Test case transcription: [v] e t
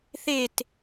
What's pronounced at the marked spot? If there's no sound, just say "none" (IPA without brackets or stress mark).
θ